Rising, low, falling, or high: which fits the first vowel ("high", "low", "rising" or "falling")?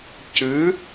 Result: rising